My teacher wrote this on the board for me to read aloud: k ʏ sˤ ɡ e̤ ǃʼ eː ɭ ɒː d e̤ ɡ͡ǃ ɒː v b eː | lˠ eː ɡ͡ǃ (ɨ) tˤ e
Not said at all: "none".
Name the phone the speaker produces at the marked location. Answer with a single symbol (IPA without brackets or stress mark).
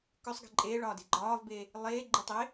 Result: ɨ